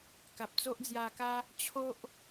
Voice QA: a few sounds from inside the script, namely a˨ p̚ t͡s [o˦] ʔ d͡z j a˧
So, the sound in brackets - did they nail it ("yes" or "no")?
yes